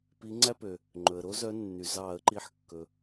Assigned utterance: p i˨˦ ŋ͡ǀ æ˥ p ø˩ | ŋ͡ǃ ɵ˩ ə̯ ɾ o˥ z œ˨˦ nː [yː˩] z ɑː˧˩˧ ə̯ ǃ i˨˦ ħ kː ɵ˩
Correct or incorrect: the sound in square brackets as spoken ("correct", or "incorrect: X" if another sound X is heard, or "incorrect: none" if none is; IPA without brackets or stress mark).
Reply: incorrect: y˩